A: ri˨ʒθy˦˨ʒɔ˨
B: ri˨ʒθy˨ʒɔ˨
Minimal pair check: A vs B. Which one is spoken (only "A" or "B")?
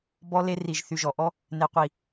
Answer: B